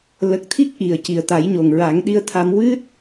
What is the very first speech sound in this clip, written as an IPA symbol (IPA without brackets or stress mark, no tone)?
l